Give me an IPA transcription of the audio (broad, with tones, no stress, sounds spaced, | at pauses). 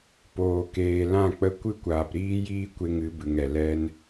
p oː˨ k eː˨ l ã˦˨ k͡p ə˧ kʷ ɨ˦ kʷ aː˨ p ɾ iː˦ j iː˦ kʷ e˦ ŋ ɨ˨˦ b ɨ˨ ŋ ɛ˨ l ɛ˧ n